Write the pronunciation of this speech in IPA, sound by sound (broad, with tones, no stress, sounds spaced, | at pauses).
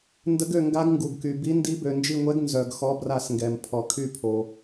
n d ə˨˦ ɡ ø˧˩ ŋ ɡ a˨˦ ɡ ŋ ɡ u˩ ɡ k y˩ b i˨˦ n d i˨˦ b ø˩ n d͡ʒ i˧˩ ŋʷ ɛ˨˦ ɡ n z œ˩ ɡ x ɔ˨˦ b r a˧˩ s ŋ ɡ ɛ˩ m pʰ ɔ˩ kʰ y˧˩ pʰ o˩